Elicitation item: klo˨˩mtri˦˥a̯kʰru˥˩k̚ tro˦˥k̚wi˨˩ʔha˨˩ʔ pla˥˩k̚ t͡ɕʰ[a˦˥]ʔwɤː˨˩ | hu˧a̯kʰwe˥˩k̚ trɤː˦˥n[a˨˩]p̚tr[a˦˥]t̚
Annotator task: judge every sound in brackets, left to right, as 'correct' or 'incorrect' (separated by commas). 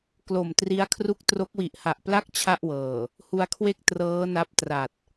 incorrect, incorrect, incorrect